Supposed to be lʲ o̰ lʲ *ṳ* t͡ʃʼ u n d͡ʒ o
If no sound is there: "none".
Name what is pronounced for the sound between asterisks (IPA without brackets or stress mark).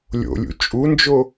ṵ